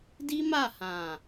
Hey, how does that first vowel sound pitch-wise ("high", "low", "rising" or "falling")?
high